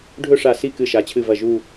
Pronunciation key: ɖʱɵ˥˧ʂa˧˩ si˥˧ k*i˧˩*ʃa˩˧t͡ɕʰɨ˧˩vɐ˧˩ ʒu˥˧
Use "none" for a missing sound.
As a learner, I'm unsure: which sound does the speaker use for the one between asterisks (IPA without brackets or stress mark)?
ɨ˧˩